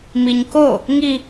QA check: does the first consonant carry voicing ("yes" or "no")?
yes